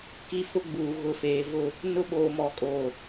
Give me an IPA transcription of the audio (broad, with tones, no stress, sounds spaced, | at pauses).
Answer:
k i˦ f ʊ˦ ɡ͡b uː˨ ɣ ʊ˨ f eː˨ v ʊ˦˨ | n ʊ˦ ɓ oː˨ m ɔ˨ kʼ oː˨